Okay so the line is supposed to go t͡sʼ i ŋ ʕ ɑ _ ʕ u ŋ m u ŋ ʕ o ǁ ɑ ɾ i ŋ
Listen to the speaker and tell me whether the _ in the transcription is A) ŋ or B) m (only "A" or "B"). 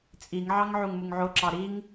A